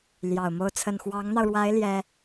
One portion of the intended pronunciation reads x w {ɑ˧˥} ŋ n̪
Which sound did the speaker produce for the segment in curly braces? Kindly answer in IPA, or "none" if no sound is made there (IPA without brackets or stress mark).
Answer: ɑ˧˥